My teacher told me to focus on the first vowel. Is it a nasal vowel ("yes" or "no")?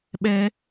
no